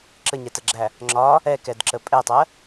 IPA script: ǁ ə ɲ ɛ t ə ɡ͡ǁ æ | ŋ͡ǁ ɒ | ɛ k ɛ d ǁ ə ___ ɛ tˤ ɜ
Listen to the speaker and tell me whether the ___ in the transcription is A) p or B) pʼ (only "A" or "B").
B